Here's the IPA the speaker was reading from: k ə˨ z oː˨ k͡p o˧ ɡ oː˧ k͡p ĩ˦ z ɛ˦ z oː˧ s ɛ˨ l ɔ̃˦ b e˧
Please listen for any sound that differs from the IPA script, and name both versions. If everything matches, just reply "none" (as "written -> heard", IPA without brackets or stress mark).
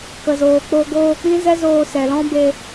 none